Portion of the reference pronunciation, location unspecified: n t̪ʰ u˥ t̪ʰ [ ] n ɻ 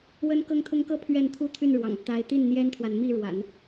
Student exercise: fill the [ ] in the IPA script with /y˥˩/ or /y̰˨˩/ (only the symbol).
y˥˩